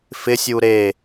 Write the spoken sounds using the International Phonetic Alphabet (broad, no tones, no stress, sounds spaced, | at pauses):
f ɪ sʲ u ɾ e